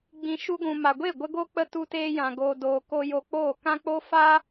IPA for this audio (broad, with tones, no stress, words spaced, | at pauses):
ɡ͡bĩ˨ ʃu˧ɡʷũ˨ ma˨ɡʷe˦˨ ɡʷə˦ɡo˦k͡pə˦ tu˧teː˧jã˨ ɡoː˧doː˧ko˦ jo˧k͡poː˦˨ kã˦k͡po˦ fa˦